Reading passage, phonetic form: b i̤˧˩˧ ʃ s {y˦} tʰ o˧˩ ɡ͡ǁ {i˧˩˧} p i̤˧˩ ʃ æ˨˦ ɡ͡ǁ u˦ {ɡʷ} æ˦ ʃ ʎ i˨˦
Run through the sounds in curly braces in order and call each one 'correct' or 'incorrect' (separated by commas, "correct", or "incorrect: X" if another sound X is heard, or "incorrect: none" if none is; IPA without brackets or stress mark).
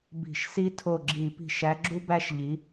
incorrect: i˦, correct, incorrect: b